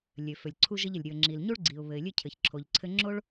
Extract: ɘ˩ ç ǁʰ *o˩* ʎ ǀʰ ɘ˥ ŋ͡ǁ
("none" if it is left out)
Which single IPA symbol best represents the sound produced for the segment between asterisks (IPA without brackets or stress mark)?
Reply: o˩